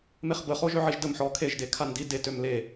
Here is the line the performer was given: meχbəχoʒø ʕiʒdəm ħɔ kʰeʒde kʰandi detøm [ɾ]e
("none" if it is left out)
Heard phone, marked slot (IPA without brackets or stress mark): l